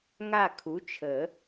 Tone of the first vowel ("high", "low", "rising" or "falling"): falling